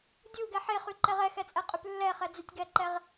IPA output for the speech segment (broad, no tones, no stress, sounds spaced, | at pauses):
dʲ u ɡ ɛ ħ e χ y ǃ ɛ ʁ ɛ x ɛ t͡sʼ ɛ qʼ y p lː ɛ χ ɛ d͡z y tʲ ɡ ɛ ǃ ɛ ʁ